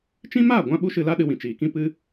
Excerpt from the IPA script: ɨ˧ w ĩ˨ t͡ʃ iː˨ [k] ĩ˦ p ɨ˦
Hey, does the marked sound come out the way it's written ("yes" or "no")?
yes